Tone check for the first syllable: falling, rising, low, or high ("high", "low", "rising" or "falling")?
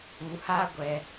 low